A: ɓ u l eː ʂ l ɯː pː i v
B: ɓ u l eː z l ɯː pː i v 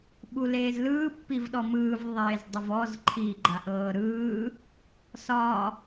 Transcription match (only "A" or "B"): B